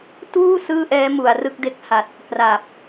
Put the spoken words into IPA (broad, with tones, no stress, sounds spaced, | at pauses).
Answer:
t uː˥˩ s ɯː˥˩ ʔ ɛː˦˥ m u˩˦ a̯ r ɯ˥˩ k̚ d e˦˥ k̚ h a˨˩ t̚ | k r a˨˩ p̚